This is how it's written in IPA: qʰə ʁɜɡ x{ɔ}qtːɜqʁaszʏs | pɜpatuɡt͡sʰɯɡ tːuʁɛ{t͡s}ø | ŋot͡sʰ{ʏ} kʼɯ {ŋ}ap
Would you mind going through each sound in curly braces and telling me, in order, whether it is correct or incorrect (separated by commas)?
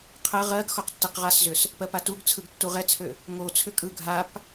correct, incorrect, correct, incorrect